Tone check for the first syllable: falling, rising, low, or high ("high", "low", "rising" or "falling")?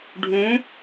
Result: rising